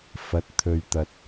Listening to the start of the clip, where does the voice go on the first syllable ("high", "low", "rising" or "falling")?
rising